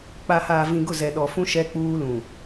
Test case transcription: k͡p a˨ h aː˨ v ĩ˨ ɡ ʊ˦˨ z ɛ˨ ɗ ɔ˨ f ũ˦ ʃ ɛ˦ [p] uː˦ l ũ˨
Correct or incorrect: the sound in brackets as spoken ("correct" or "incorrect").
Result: incorrect